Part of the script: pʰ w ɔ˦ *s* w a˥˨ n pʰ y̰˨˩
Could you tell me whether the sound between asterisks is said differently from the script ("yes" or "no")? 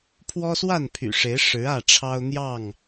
no